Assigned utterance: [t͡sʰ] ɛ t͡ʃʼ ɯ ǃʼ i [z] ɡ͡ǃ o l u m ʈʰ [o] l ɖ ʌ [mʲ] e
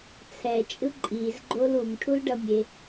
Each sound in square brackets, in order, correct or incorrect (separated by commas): correct, correct, incorrect, correct